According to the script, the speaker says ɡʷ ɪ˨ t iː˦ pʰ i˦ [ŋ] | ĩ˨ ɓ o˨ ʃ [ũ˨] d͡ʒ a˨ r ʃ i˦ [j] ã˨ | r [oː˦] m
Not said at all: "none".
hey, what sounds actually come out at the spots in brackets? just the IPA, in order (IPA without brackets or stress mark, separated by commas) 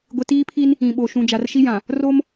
n, ũ˨, j, o˦